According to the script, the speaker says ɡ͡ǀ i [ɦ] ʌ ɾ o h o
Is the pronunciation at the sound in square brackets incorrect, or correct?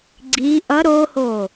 incorrect